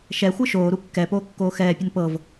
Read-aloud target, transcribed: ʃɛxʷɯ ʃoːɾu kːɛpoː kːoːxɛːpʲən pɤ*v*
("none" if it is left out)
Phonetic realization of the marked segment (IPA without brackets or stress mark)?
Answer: v